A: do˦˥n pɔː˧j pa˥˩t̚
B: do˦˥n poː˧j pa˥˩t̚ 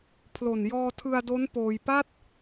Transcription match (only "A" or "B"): B